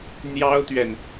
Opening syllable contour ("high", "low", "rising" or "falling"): high